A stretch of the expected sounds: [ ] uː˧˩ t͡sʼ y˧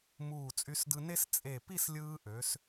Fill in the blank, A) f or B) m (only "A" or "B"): B